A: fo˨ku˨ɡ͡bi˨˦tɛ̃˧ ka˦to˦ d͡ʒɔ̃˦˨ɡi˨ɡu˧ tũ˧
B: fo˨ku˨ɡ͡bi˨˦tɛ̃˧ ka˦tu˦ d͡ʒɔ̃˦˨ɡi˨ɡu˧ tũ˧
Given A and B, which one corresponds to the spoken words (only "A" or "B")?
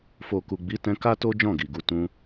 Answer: A